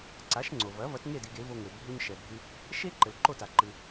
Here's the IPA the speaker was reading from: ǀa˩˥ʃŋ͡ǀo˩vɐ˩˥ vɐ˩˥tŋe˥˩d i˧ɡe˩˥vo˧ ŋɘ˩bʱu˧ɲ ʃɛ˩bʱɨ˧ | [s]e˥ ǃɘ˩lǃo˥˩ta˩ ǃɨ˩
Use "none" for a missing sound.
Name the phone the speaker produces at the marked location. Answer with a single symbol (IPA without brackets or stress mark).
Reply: ʃ